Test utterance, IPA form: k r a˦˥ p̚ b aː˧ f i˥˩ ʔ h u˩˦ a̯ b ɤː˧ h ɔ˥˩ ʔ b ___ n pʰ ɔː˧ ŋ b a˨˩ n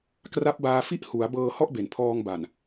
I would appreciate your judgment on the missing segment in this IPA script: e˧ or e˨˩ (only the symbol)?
e˨˩